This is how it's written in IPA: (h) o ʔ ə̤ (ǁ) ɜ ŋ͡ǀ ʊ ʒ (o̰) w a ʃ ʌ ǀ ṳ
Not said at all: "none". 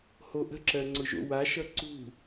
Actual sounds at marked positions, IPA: h, ǁ, o̰

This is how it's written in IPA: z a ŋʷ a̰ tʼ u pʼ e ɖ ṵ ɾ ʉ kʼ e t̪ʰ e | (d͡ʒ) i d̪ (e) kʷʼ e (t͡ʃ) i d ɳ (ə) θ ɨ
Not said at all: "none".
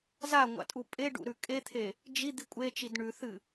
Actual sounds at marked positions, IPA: d͡ʒ, i, t͡ʃ, ʉ

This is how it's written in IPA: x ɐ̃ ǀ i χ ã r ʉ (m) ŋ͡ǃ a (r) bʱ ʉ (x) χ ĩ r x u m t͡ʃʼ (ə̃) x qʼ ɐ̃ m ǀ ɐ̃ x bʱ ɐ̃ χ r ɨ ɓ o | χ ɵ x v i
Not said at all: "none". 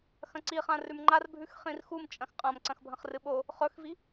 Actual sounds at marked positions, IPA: m, r, x, ɐ̃

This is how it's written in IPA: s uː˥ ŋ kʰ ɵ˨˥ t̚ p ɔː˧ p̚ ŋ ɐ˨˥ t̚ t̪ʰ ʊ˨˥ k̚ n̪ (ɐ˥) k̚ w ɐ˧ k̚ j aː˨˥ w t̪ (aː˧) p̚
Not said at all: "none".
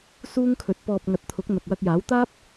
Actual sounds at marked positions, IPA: ɐ˨, aː˥

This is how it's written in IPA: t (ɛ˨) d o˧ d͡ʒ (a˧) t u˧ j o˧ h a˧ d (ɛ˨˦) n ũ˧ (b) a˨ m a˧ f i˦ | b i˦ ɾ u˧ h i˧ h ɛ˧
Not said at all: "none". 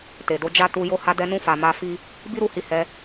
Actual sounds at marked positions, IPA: e˨, a˦, ɛ˧, f

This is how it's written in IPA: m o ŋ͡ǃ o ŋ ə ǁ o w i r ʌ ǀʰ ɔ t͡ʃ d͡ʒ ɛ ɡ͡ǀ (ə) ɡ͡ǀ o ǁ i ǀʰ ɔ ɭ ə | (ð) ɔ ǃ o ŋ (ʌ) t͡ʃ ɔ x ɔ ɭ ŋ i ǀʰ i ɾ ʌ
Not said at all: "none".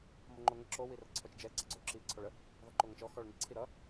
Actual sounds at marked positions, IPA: ʌ, ð, ʌ

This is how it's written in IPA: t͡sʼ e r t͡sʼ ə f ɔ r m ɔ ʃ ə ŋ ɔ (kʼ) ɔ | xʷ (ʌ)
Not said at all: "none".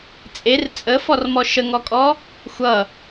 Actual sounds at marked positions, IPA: kʼ, ʌ

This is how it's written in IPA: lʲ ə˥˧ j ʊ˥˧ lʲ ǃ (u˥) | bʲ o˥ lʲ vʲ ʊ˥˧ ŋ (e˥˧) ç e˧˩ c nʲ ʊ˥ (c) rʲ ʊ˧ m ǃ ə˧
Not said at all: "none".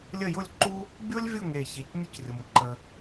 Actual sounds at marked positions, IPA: u˥, e˧˩, c

